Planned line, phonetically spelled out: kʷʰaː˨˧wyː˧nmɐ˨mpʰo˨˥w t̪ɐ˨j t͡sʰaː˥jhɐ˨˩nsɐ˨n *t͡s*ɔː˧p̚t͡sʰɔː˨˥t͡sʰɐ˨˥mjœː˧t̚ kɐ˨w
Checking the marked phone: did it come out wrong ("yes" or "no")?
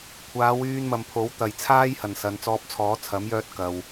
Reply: no